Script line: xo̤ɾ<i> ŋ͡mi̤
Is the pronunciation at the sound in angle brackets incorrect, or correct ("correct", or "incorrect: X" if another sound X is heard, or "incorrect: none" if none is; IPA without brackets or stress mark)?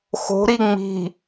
correct